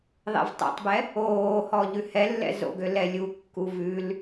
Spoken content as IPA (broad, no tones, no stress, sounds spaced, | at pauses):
ðˤ ɛ̰ v tˤ ɛ̰ tˤ b ɛ | oː h ɔ ʎ ʉ h ɛ lː ɛ̰ z o̰ ɡ ø l ɛ lʲ u kː u v ʉ l